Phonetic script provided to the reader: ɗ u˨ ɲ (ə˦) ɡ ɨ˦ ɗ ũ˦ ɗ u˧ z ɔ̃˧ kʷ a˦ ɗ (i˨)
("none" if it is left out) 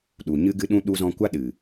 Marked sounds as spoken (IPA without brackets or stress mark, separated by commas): ɨ˦, ɨ˨